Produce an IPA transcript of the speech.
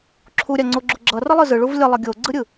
ǁʰ u ɾʲ a ŋ͡ǀ o ɡ͡ǁ u ɡ͡ǁ ʌ r ʌ lˠ ɯ z ɯ ɭ u v lʲ ʌ lˠ ʌ ɡʲ o ɡ͡ǀ ɯ ɾʲ ɯ

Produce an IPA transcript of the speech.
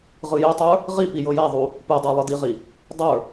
ʁ ɯ j e tˤ ə˞ | ʁ i p i j ɤ j a ðˤ u | p ɯ dˤ a lˠ ɯ d i ʁ i | dˤ ə˞

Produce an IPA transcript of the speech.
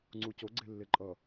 ŋ͡ǀ u c o ɡ͡ǀ e lː e ǃʼ ʌ

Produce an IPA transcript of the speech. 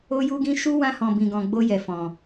o˦ j u˦ ɡ ĩ˦ ʃ u˦ w ã˦ h ɔ̃˧ b ĩ˧ ɡ ɔ̃˧ ɡ͡b o˦ j ɛ˧ f ɔ̃˧

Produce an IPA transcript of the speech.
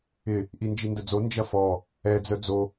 ɪ | ʔ i n d͡ʒ i n d ə d͡z o n d͡ʒ ɐ f ɔ | ɛ d͡z œ d͡z o

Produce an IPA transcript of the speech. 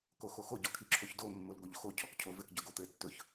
k o x o x o ɟ ɔ kʰ i ǁʰ o ç d o mː o l ɡ o ʎ x o cʰ ɔ k cʰ o v ɘ k ɟ ɵ ɡ o t̪ ɘ tː ɵ ç

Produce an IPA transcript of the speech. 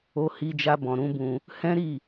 o˧ h i˧ d͡ʒ a˧ b ɔ̃˨ ɾ ũ˨˦ b ũ˧ | h ɛ̃˦ ɾ i˦˨

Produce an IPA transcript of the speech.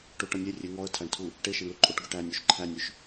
ʈ o ʈ ʌ nʲ e rʲ e ŋ ɔ ə̯ tʰ æ ɳ tʰ u | ʈ e ʃ e ɳ l u ǃʼ o ʈ ɡ ø ʈ æ nʲ o ʃ ǃʰ æ nʲ ø ʃ

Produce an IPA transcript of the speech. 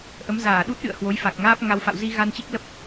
ʔ ə˨˦ m z aː˧˩ ɗ u˦˥ t̚ ɗ ɨ̰˧˨ ə̯ h w o˨˦ j f a˨˩ k̚ ŋ aː˦˥ p̚ ŋ a˧ w f a̰˧˨ w z i˧ ɣ a˧ n t͡ɕ i˦˥ k̚ l ə˦˥ p̚

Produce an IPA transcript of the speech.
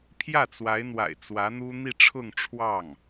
pʰ j ä˥˩ t͡s w a˧˥ ɪ̯ n̪ w a̰˨˩ ɪ̯ t͡s w ä˧˥ n̪ u˥ n̪ i˥˧ ʈ͡ʂʰ ʊ˥˧ ŋ ʈ͡ʂʰ w ɑ˥˩ ŋ

